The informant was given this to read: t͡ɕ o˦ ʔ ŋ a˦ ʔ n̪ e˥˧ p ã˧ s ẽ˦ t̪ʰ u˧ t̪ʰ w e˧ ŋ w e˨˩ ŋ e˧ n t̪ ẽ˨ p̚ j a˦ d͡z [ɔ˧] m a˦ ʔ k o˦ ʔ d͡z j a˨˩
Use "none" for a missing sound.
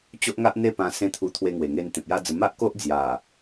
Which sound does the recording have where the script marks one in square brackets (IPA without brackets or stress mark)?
ə˧